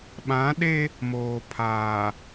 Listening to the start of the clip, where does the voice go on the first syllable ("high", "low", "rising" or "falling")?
rising